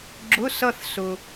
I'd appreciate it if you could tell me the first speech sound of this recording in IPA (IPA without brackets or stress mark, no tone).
ɡ͡ǁ